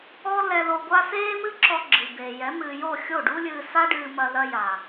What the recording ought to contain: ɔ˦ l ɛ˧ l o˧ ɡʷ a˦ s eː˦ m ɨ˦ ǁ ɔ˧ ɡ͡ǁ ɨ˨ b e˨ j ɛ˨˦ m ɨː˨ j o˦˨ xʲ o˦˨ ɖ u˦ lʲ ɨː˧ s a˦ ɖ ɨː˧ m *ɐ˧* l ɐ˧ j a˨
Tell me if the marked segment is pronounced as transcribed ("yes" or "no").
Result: yes